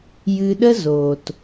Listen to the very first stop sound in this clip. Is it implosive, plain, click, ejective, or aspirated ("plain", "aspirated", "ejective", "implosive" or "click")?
implosive